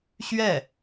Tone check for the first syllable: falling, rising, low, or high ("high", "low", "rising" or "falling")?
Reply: falling